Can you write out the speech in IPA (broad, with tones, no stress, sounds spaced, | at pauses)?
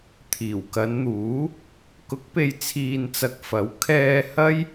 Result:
t̪ʰ iː˨˩ w k ɐ˨˧ n n̪ uː˨˥ | k ʊ˨˥ k̚ p e˨ j t͡sʰ iː˨ n t͡s ɐ˨ k̚ f ɐ˨˥ w kʰ ɛː˧ h ɐ˥ j